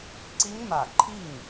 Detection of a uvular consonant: absent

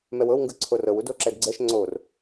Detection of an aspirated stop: present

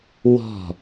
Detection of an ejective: absent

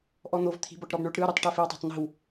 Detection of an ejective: absent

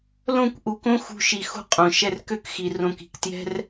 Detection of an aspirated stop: absent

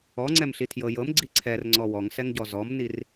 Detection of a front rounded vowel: absent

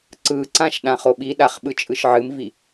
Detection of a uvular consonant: present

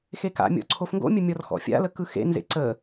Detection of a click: present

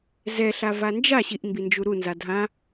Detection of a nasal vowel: present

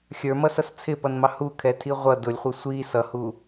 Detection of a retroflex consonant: absent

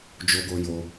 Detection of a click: absent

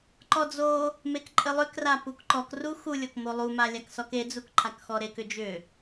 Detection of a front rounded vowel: present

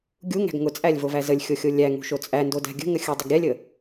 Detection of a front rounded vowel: absent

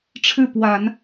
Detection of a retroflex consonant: present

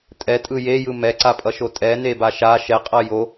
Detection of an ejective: present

